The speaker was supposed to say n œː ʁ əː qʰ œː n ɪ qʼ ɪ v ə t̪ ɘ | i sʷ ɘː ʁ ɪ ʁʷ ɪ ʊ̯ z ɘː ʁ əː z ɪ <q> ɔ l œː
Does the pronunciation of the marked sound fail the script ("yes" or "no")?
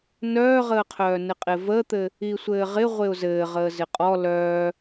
yes